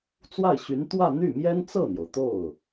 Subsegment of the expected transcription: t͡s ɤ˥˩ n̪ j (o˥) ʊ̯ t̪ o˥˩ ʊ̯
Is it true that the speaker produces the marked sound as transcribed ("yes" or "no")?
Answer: no